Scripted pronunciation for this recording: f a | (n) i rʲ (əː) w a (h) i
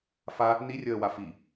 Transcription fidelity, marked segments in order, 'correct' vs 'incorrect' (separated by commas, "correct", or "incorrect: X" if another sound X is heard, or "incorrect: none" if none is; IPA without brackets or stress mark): correct, correct, incorrect: f